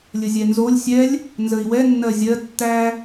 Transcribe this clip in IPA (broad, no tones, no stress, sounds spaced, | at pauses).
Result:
lʲ ə zʲ ɛ n z o lʲ sʲ ɛ lʲ | n z ə i̯ w ɛ nː ɜ zʲ ɜ tː æ